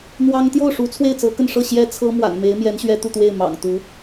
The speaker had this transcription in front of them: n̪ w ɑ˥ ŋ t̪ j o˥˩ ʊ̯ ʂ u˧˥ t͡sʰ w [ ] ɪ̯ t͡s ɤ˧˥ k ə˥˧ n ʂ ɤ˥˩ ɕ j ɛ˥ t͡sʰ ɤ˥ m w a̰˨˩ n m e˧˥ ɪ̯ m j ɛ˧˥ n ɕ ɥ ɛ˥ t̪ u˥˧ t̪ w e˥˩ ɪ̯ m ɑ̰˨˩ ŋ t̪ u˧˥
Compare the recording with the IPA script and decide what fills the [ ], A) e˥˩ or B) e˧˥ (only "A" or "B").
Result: A